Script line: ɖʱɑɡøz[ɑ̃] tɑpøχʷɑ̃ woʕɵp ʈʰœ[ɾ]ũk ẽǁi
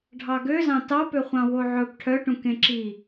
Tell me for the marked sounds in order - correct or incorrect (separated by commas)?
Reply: correct, incorrect